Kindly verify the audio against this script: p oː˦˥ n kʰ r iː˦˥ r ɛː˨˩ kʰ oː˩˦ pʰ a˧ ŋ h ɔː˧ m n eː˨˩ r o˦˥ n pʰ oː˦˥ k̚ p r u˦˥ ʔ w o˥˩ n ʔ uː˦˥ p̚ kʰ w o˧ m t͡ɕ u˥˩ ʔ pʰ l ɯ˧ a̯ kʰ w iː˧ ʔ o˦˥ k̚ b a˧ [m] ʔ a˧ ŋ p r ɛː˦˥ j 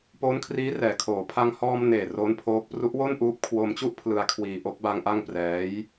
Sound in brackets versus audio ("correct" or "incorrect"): incorrect